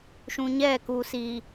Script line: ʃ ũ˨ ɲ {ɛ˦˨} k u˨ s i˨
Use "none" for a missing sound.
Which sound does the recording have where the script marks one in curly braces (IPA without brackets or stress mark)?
ɛ˦˨